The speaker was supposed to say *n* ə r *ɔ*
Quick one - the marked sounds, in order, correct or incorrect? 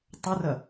incorrect: tˤ, incorrect: ʌ

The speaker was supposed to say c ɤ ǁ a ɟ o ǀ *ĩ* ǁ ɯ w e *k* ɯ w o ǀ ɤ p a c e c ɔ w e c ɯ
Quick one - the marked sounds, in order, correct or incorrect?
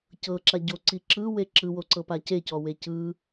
incorrect: i, incorrect: ǁ

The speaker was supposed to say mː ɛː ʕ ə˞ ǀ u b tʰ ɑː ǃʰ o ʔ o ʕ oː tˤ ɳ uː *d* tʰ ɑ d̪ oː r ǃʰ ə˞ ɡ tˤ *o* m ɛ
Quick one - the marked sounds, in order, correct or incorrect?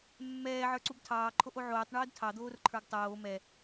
correct, incorrect: oː

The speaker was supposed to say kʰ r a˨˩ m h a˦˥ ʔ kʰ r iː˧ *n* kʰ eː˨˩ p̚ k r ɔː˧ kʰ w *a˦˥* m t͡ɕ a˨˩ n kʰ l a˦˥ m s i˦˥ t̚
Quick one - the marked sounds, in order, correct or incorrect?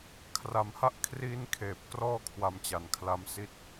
correct, correct

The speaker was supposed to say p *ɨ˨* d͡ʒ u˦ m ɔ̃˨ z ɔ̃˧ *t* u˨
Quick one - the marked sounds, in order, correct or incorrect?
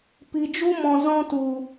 incorrect: i˨, correct

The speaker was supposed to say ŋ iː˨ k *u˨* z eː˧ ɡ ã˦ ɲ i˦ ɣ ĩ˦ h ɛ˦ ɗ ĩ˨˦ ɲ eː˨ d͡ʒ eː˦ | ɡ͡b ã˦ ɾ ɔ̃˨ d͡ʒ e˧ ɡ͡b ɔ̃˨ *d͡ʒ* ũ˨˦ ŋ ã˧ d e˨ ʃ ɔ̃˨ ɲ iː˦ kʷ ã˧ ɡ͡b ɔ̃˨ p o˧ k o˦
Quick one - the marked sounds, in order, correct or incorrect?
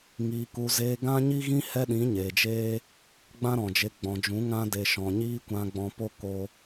correct, correct

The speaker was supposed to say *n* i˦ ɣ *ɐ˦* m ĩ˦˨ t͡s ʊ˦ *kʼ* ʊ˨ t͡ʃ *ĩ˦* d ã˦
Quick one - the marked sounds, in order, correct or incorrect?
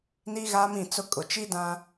correct, incorrect: a˦, correct, incorrect: i˦

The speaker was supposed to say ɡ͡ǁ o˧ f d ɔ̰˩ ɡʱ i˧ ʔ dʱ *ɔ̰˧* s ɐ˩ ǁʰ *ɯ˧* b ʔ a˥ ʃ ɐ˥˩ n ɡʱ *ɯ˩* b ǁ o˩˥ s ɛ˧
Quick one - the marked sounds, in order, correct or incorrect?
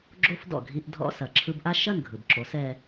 correct, correct, correct

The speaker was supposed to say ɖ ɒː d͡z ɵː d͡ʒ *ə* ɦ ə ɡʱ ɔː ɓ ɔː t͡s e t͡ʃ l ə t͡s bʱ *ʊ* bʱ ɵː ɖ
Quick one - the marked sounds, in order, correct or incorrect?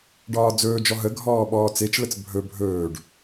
incorrect: ɔ, incorrect: ɵ

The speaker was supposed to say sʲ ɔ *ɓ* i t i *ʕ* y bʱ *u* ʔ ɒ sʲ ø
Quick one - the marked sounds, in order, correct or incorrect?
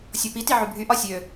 incorrect: p, correct, incorrect: y

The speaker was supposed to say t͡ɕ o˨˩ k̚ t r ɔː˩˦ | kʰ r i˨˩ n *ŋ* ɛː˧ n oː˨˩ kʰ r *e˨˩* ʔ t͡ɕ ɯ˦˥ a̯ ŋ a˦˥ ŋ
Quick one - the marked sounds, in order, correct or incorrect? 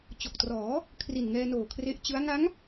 correct, incorrect: e˦˥

